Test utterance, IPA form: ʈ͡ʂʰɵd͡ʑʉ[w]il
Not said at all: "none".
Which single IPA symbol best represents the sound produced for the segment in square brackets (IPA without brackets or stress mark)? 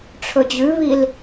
β